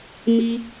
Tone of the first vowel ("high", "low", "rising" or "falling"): high